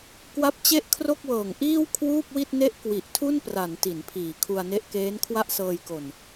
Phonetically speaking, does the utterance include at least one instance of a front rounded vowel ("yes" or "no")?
no